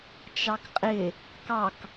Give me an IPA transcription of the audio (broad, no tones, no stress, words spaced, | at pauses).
t͡ʃɑkqʼɪ | kɑk